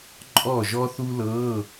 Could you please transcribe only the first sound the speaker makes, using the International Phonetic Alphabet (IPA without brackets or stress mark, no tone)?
ǃʼ